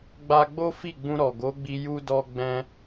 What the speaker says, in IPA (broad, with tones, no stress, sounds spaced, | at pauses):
ɡ͡b a˧ ɡ͡b o˦ f i˦˨ ɡ͡b ũ˧ ɾ ɔ˨ ɡ o˨˦ ɡ͡b i˧ j u˦ d ɔ˦ ɡ͡b ɛ̃˦